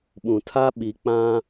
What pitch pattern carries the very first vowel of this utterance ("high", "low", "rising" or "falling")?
low